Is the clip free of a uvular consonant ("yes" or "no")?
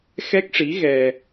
yes